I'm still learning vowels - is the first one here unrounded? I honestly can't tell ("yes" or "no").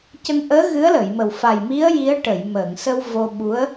yes